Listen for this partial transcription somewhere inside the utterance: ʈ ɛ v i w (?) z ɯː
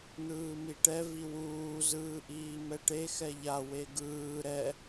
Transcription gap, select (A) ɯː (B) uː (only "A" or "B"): B